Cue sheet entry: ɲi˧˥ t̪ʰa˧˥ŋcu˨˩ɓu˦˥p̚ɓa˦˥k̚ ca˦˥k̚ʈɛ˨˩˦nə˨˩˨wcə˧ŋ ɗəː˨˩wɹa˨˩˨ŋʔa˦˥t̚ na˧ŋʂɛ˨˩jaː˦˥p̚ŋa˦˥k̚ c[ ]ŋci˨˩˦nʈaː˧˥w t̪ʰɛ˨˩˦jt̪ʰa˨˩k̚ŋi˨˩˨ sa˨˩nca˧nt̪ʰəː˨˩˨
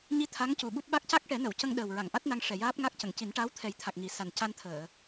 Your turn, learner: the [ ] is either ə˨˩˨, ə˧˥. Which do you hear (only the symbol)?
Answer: ə˨˩˨